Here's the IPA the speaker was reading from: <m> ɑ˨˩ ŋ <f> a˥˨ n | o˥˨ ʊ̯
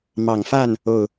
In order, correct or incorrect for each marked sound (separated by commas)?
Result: correct, correct